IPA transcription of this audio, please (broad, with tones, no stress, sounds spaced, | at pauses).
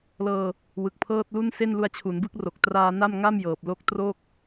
l ɤː˧ | w ɯ˨˩ k̚ pʰ ɤː˥˩ t̚ l u˥˩ n s e˥˩ n l u˧ a̯ t͡ɕʰ u˩˦ n b ɯ˥˩ k̚ r o˨˩ k̚ t r aː˧ n a˥˩ m ŋ a˥˩ m j ɤː˨˩ p̚ l o˥˩ k̚ t r o˥˩ k̚